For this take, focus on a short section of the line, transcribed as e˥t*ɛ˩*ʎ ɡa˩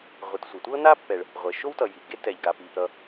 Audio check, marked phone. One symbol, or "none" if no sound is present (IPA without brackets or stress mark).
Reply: ɛ˩